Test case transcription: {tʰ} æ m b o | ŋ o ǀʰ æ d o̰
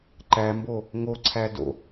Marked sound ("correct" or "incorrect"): incorrect